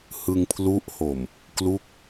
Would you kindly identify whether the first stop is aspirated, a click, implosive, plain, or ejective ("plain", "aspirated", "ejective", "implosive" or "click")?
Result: aspirated